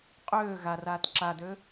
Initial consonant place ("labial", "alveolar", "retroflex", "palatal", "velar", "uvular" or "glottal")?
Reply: uvular